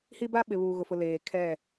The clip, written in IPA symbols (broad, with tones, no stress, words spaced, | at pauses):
hi˦ba˦ ɓɪ˨βuː˨ɣʊ˨fʊ˨ leː˨ kʰɛ˦˨